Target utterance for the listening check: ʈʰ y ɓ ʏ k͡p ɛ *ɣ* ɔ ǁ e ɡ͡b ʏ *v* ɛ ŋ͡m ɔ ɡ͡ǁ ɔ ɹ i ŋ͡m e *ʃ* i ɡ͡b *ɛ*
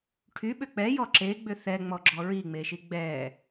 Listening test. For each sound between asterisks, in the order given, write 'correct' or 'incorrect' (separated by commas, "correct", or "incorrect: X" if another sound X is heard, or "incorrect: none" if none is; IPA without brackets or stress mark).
incorrect: j, incorrect: θ, correct, correct